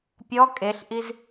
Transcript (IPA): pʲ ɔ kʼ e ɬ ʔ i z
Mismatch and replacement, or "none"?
none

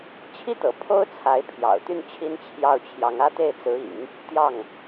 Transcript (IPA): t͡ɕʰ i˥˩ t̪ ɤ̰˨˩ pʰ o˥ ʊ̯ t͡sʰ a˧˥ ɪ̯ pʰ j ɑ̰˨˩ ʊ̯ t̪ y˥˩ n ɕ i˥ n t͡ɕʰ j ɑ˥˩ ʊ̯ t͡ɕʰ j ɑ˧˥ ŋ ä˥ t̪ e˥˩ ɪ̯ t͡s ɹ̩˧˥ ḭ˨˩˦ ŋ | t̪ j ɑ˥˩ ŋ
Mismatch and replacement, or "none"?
ɕ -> t͡ɕʰ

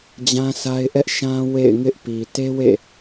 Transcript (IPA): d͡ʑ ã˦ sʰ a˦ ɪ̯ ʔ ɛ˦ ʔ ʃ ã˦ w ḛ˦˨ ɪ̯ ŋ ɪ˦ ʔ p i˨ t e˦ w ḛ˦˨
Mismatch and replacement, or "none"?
none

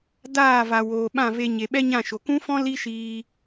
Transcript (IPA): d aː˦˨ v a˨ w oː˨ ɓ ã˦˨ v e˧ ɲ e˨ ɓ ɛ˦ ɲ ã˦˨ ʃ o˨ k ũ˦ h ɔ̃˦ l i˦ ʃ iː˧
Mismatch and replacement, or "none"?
h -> f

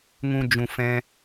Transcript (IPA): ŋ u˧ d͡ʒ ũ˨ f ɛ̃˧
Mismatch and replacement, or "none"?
u˧ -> ũ˧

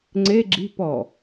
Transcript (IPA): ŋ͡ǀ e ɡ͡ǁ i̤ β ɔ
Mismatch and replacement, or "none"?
β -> p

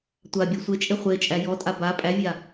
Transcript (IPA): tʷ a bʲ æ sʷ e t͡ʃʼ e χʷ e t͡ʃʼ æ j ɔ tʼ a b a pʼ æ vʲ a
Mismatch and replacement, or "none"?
none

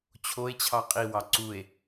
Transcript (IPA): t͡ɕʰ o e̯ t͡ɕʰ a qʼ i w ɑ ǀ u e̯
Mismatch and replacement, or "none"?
a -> ɑ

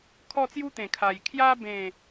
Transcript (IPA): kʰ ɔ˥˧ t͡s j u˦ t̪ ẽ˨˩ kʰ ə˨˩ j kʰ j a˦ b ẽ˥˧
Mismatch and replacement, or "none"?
ə˨˩ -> a˨˩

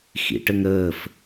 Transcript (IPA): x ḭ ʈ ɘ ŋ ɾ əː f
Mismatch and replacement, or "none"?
none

